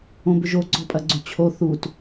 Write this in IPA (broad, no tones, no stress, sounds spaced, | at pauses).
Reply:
õ b ʏ ʒ o ɡ͡ǀ ɔ pʼ ɐ ɡ͡ǀ ʏ t͡ɕʰ o θ u t